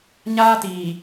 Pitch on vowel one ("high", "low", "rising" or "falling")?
high